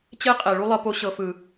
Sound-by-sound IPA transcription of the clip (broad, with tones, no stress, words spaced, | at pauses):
t͡ɕe˦qʼe˨ ɭu˦lˠɤ˧ po˧ ɕɤ˨ fɯ˨